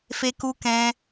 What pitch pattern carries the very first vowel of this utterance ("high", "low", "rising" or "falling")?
high